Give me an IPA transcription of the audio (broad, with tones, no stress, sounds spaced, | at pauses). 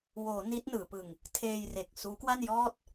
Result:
w oː˩˦ n i˦˥ t̚ n ɯː˩˦ p ɯ˧ ŋ | tʰ eː˧ j r e˨˩ k̚ s uː˦˥ k w a˥˩ n j ɔː˥˩ t̚